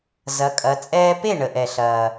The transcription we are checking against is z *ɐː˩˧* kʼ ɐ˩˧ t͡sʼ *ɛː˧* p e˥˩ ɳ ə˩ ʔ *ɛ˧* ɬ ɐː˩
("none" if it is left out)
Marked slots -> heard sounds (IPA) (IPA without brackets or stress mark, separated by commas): ɐ˩˧, ɛː˧, ɛ˩